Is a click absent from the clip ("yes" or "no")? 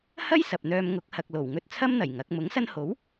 yes